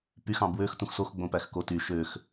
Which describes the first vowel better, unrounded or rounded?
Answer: rounded